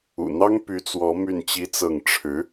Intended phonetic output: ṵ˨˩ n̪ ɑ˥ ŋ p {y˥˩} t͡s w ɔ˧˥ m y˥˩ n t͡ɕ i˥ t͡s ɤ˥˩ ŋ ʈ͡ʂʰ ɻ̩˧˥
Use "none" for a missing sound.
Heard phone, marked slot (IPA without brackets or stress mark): y˧˥